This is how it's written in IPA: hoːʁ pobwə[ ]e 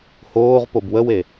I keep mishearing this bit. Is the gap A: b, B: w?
B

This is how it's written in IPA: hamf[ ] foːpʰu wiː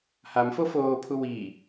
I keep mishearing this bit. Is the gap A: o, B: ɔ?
A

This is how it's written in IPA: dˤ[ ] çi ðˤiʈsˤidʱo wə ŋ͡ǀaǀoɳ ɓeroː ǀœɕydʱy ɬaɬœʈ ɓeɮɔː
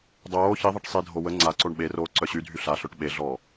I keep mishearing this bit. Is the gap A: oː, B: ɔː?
A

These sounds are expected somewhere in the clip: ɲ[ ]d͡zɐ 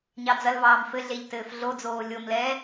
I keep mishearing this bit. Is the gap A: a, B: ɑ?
B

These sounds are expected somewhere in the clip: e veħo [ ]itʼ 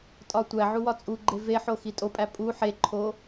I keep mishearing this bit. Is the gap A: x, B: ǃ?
A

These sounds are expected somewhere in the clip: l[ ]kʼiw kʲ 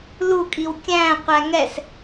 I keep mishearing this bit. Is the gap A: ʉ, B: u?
B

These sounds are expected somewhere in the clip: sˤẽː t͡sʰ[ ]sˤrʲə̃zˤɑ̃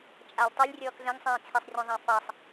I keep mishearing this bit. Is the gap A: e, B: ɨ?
A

